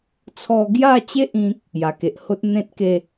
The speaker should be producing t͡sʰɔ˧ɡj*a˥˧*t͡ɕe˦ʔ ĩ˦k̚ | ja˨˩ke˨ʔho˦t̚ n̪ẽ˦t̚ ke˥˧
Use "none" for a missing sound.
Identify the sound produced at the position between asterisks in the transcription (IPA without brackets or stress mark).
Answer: a˥˧